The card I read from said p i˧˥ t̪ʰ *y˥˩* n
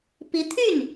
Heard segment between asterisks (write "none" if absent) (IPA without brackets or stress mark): y˥˩